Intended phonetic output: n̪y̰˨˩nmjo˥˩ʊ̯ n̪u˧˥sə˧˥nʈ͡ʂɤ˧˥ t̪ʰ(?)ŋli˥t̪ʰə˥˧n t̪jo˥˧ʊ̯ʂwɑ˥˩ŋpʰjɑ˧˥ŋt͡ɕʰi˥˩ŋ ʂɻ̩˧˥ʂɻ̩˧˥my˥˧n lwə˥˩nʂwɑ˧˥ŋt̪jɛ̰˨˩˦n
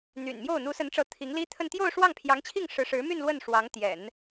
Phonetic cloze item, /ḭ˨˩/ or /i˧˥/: i˧˥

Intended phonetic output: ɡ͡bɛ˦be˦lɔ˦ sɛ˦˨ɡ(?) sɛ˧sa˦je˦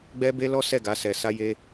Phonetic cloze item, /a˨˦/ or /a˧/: a˨˦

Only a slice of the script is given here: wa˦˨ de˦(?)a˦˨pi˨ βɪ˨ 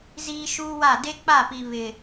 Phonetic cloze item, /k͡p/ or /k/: k͡p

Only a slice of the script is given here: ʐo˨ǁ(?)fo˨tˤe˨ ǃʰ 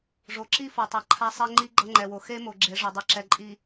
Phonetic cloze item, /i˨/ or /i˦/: i˦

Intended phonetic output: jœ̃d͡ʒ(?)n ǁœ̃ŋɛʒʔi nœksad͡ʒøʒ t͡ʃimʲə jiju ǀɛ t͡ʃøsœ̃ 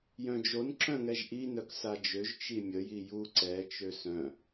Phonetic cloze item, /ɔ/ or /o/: o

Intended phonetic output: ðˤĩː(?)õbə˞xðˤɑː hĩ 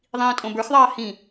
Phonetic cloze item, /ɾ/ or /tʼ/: tʼ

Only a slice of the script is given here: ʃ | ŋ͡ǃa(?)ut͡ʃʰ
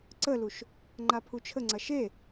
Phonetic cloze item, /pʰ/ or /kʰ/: pʰ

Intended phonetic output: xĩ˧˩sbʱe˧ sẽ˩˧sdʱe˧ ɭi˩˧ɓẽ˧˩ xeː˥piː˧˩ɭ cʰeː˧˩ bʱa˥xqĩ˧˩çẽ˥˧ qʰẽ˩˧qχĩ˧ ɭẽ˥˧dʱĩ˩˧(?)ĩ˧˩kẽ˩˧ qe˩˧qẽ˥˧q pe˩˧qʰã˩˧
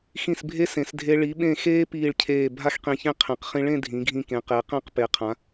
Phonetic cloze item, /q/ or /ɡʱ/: ɡʱ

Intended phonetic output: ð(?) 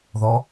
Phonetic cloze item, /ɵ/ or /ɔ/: ɔ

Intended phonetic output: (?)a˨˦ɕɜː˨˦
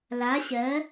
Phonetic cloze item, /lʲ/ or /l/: l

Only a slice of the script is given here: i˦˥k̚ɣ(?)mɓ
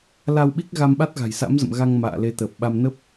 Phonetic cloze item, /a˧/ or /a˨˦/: a˧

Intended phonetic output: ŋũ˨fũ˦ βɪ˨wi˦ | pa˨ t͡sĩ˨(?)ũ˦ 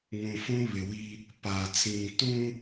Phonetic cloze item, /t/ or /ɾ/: t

